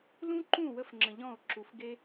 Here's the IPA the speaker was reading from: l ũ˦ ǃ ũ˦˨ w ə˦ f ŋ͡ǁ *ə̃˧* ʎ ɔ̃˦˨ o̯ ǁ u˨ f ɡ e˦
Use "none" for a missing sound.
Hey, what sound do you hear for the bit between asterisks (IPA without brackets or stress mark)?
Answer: ə̃˧